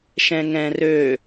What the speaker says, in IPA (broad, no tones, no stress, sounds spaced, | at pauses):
ʃ ɛ̃ ŋ ɛ̃ r ø